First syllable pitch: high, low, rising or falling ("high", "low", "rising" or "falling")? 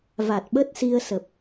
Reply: low